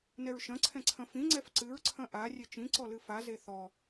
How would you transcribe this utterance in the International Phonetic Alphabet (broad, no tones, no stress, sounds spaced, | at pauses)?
n ɛ ɹ ʃ ɐ̃ ǀʰ ɛ̃ ǀʰ ɐ̃ f ĩ ŋ͡ǀ ɛ f ǀ ɨ ɹ ǀʰ ɐ̃ ʔ a rʲ e t͡ʃ ĩ ǀ ɔ l ɨ f a z e θ ɔ